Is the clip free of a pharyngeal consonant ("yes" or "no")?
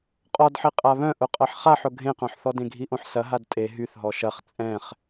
no